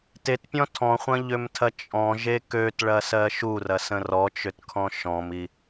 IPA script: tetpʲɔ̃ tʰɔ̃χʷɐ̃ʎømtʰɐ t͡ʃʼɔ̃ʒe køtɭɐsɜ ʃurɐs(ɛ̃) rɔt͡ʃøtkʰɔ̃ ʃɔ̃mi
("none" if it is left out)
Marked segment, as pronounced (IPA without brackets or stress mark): ə̃